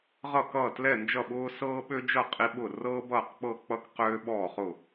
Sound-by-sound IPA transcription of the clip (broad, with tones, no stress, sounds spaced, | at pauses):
ʁ ʌ˥˨ k ʌː˥˨ t l ɛ˥˨ n d͡ʒ ʌ˥˨ ɓ ʊː˥ s ɤː˥ ɓ ø˥ d͡ʒ ʌ˥˨ qʼ i˥ ɓ ʊ˥˨ r ɤː˥ b ʌː˥˨ q k͡p ɤ˥˨ k͡p ʌ˥ k q øː˥ ɓ ɔː˥˨ χ ʊ˥˨